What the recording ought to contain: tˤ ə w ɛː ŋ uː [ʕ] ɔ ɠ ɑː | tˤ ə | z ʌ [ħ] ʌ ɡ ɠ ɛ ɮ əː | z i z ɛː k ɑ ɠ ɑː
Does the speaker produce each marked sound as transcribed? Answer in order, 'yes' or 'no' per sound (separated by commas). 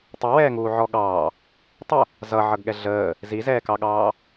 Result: yes, no